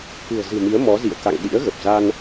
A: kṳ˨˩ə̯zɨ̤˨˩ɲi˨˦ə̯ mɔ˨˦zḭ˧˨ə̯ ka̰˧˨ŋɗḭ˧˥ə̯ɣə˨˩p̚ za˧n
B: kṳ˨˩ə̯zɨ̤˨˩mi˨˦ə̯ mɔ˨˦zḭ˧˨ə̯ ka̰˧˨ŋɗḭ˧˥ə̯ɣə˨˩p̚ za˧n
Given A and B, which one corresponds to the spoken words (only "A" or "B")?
B